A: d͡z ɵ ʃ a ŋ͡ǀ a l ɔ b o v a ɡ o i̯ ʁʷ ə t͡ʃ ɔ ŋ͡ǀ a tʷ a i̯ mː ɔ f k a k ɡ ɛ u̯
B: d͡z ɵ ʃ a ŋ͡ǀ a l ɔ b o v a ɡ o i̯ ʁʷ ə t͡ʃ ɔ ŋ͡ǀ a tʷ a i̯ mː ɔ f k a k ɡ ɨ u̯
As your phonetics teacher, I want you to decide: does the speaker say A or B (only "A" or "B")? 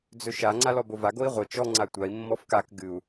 B